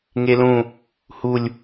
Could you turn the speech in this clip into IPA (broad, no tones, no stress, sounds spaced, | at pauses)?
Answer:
ŋ e l ũ | h u lʲ